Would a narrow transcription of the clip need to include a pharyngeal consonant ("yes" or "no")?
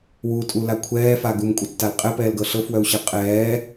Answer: no